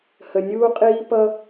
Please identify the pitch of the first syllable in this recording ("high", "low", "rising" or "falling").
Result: low